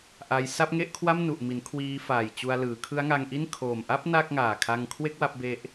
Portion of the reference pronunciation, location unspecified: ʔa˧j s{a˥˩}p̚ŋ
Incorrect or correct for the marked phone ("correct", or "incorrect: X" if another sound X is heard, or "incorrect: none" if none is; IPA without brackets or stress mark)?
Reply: correct